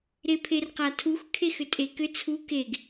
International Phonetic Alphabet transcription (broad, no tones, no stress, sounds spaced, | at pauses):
ɾ e pʰ e r q a tʰ u x kʰ e x ʏ tʼ e k ʏ t͡sʰ u k e ɡ